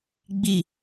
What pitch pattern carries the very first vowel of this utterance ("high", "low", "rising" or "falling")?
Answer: low